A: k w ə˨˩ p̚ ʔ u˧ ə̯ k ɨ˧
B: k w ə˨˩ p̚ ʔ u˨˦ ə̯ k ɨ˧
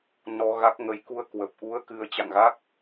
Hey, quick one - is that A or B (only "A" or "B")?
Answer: A